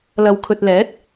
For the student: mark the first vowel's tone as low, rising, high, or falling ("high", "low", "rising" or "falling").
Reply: low